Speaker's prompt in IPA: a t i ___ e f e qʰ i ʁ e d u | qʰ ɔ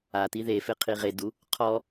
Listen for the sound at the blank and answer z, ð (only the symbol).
ð